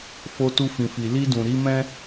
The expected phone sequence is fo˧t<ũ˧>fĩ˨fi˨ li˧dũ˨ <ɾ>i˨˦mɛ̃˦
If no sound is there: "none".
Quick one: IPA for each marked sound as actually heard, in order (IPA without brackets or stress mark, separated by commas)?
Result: u˧, ɾ